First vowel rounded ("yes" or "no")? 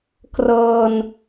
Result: no